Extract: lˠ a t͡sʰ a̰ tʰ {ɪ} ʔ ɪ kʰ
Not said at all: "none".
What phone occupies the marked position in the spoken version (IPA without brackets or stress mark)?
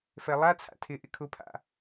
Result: ɪ